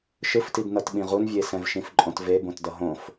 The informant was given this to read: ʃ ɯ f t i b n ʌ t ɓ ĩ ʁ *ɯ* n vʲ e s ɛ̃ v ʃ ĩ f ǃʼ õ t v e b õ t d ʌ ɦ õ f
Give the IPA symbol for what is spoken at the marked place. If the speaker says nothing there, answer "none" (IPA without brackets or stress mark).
u